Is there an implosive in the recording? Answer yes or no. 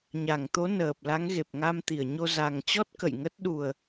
yes